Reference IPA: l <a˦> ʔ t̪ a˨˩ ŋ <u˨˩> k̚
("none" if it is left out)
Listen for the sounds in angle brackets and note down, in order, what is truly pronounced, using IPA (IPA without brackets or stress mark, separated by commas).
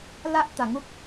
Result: a˦, u˦